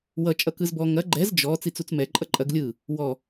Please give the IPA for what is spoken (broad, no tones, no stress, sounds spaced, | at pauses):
w ʌ t͡ʃʼ ʌ k ɯ z b ɔ ŋ ɐ ɡ͡ǃ ɛ z d͡ʒ ɔ t͡s i t͡s u t͡s m ɛ ǃʼ ʌ ǃʼ ɐ ɡ lʲ ɯ | w ɔ